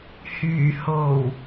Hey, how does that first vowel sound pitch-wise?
low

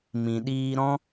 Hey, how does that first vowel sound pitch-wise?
low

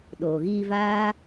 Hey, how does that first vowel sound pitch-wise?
low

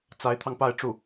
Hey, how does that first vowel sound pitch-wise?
rising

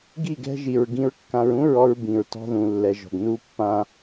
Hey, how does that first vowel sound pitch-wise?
falling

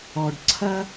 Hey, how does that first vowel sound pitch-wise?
low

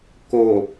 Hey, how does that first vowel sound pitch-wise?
low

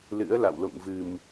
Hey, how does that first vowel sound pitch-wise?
rising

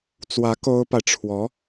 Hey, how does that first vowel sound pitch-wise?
rising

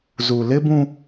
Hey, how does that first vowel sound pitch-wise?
low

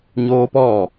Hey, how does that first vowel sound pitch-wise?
high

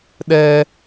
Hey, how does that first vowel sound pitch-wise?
high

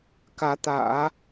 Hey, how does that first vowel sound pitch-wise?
rising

